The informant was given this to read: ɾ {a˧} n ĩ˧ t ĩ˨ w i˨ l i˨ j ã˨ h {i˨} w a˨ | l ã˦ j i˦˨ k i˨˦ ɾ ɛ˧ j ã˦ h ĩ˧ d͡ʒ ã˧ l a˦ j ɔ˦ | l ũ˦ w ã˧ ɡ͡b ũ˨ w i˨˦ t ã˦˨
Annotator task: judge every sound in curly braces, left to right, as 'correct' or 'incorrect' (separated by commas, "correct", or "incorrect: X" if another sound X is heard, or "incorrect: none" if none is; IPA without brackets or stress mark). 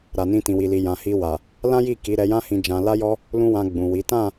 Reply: incorrect: a˨, incorrect: i˧